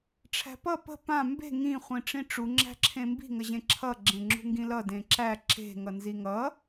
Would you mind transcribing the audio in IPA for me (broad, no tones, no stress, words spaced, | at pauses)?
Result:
ʈ͡ʂʰæ̤pʌ pə̤ pã mbe̤ ŋĩ χʷĩʈ͡ʂĩʈ͡ʂu ŋ͡ǁæ̤ǁʰẽmbi̤ ŋəʑẽǁʰʌ ɡ͡ǁẽŋ͡ǁṳŋɡĩlʌ dẽǁæ ǁe̤ ŋʌnziŋʌ